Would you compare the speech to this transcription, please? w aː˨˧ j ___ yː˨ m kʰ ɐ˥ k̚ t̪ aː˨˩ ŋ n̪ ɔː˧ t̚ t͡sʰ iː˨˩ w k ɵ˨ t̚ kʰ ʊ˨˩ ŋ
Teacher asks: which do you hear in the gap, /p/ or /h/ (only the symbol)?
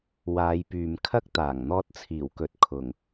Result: p